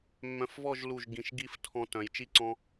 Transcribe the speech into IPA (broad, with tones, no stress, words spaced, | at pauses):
mːœ̃˧˩fvɔ˥˨ʒlu˧˩ʒ ɡĩ˧˩ʃɡi˥˨f tʰɔ̃˦tœ̃˨˦j t͡ʃi˥˨ǀɔ̃˦